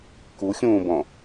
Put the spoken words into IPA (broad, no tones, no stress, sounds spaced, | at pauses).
k u xʲ ũː b ɔ̃